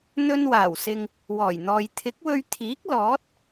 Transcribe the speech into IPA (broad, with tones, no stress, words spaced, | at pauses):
n̪ɵ˧nwaː˨˩wsɪ˨ŋ | wɔː˨˩jn̪ɔː˨j t̪ʰɪ˨˥k̚wɵ˧ɥ t̪ʰiː˨˥k̚ lɔː˨˥t̚